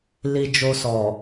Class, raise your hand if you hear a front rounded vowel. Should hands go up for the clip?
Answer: no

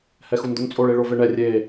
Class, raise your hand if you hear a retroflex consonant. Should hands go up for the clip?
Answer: yes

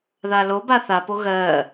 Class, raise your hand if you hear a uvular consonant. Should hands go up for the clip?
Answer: no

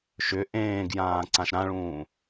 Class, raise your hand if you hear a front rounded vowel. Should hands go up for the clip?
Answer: yes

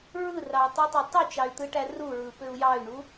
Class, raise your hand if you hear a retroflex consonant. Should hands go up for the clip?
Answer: yes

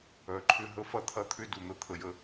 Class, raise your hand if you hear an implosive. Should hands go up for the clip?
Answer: no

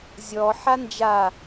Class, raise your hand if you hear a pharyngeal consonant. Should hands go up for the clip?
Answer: yes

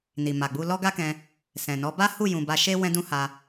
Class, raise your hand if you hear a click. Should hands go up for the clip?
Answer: no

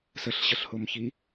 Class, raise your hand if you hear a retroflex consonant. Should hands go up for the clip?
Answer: no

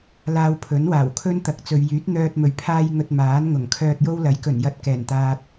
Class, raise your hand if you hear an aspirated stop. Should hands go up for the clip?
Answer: yes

